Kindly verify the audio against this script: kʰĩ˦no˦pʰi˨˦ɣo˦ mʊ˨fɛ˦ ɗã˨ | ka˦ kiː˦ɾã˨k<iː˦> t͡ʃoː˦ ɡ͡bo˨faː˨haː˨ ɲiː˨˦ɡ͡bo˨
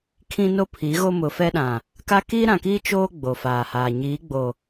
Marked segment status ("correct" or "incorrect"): correct